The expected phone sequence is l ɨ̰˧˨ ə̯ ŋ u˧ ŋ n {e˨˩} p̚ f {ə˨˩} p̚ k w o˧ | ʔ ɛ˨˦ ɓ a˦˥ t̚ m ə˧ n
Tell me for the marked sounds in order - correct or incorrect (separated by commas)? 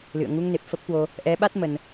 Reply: correct, incorrect